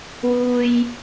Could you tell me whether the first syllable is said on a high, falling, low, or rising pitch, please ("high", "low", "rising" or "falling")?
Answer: high